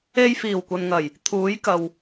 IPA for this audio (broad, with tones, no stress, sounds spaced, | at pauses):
e˧ j f iː˨˩ w kʷ ɐ˨ n ŋ ɐ˨˩ j | t̪ʰ uː˨˥ j k ɐ˨ w